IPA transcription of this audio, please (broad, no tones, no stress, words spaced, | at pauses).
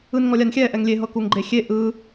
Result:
ɯnŋɔlʲanxʲɛ ʔɛŋlʲe ɦɤkuŋɡ͡ǃexʲe ʔɯ